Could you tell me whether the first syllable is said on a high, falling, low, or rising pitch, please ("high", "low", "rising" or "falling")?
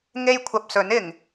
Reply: high